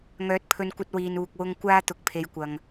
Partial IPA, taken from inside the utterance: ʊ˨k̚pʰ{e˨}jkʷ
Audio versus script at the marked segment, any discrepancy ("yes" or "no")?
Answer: no